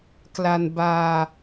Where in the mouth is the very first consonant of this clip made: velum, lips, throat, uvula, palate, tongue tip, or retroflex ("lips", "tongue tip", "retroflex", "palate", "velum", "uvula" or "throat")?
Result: velum